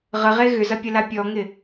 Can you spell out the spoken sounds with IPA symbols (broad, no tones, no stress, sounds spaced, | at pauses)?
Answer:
ʁ ə ʁ e ɣ ʏ z ɐ pʲ ə l a pʲ ɔ ŋ ɪ